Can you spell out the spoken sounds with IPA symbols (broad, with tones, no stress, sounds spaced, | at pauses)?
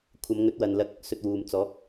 kʷʰ ɐ˨˧ m ŋ ɵ˨˥ t̚ w ɐ˨ n l ɐ˧ k̚ | s ɵ˧ t̚ w uː˨ m t͡s ɔː˨˥ k̚